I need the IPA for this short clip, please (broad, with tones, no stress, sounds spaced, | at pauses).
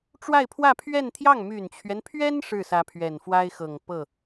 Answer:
ʈ͡ʂ w a˥˧ ɪ̯ pʰ w ä˥˧ pʰ ɥ ɛ˥˧ n t̪ʰ j ɑ˥˩ ŋ m y˨˩ n t͡ɕʰ ɥ ɛ˦ n pʰ ɥ ɛ˥ n ʂ ɻ̩˥˩ s ä˧˥ pʰ ɥ ɛ˨˩ n f w a˥ ɪ̯ x ɤ˨˩ ŋ p ɤ˥˩